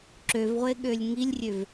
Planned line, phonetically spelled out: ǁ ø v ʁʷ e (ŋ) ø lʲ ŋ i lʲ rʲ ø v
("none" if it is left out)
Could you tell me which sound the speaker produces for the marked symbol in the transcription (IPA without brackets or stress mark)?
ɠ